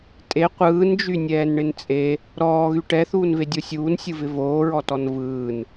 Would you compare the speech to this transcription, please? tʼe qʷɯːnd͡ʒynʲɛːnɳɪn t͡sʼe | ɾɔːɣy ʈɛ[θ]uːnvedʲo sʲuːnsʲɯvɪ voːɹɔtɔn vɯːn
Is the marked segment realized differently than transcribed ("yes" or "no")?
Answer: no